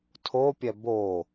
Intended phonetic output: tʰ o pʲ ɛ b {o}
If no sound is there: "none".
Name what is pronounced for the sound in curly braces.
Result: o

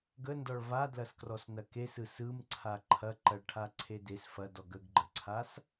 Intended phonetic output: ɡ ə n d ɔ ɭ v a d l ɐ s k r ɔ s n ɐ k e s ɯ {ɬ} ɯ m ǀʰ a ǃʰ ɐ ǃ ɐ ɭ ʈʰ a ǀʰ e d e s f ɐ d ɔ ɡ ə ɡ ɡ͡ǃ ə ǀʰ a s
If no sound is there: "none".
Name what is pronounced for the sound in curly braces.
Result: s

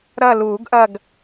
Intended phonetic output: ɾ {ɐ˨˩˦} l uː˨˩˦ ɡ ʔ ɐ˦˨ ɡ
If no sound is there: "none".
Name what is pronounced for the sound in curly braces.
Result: ɐ˦˨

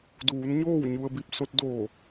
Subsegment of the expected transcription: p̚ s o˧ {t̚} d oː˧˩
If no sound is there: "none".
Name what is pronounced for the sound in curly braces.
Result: t̚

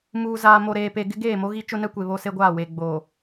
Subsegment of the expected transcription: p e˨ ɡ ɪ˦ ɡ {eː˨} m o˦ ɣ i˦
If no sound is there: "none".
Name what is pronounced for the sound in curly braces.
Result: eː˦˨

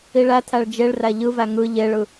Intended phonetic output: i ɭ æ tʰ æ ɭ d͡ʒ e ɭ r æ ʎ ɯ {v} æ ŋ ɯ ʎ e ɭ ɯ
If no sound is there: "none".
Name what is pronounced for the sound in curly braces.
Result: v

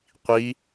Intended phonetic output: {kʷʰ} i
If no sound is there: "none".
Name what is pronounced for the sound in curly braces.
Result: qʷ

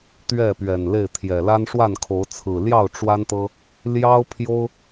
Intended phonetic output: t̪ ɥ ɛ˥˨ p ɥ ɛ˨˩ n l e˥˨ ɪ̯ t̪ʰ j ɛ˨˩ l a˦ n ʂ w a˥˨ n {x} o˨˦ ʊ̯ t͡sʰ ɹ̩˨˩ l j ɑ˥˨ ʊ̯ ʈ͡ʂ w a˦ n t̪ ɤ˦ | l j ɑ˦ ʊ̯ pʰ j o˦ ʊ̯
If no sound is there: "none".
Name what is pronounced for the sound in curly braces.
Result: kʰ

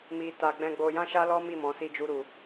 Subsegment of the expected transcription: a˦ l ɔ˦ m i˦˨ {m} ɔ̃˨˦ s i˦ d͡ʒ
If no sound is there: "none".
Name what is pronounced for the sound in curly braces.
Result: m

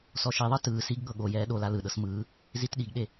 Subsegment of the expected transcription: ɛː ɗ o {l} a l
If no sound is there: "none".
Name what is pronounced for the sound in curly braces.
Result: l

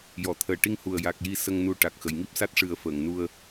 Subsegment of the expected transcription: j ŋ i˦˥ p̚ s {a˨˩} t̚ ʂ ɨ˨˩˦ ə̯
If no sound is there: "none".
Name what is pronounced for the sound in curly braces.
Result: a˦˥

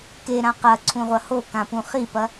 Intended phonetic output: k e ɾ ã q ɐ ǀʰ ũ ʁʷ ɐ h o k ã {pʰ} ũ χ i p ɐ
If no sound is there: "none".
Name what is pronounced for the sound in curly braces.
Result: p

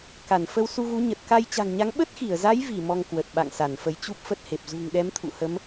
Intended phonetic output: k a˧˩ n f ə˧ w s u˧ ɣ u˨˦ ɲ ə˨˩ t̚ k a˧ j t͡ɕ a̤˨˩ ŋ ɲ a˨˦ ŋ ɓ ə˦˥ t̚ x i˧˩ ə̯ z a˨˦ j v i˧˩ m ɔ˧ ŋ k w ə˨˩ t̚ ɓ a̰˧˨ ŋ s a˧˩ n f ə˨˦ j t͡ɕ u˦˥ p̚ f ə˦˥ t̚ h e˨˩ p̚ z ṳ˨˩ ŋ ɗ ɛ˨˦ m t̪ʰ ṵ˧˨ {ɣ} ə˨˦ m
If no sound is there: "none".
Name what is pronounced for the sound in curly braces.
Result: h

